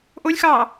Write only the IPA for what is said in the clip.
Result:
ʔ o lʲ x ɑː

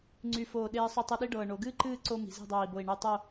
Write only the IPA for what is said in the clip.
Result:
ŋ͡ǀ y˧˩ f oː˧˩ ɗ eː˧ sˤ y˧ tˤ ɨ˧ ɗ i˥ ɖ ɤː˧˩ ɳ o˩˧ ɡ ɨː˥ ǃ ɨː˥˧ ǀ o˧ m i̤˩˧ z e̤˥˧ dˤ oː˧˩ i̯ b o˧˩ i̯ ɳ y˧˩ tˤ o˥˧

